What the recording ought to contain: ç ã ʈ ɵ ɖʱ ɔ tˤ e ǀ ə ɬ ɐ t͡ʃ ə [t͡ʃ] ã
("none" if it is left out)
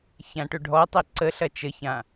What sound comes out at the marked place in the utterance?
ç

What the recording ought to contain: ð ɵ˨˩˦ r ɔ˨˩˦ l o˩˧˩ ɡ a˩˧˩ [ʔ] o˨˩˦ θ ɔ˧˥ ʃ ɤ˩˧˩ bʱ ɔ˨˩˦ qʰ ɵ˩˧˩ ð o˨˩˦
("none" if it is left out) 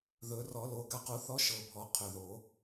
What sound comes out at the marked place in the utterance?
q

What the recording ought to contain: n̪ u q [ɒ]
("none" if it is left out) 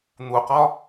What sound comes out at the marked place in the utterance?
ɒ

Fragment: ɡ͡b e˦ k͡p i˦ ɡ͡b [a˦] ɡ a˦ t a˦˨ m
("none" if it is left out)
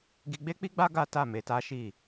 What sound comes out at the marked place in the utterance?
a˦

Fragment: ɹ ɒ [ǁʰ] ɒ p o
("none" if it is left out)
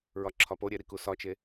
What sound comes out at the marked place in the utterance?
ǁʰ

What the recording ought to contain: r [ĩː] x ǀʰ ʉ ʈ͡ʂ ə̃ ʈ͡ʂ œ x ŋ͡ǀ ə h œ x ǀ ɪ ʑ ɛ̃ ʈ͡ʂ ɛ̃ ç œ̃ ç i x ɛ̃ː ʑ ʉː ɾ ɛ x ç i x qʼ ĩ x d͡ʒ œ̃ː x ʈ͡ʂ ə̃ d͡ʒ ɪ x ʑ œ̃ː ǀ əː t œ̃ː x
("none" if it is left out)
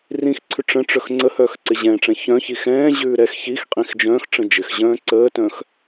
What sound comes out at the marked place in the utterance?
ĩ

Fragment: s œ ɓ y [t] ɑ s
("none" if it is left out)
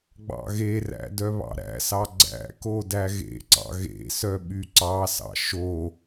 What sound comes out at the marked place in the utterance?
ǀ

